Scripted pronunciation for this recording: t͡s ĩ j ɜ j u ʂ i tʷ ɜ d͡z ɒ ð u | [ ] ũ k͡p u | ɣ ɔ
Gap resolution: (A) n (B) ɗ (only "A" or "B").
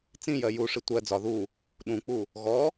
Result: B